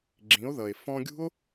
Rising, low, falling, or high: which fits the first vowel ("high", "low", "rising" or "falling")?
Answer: rising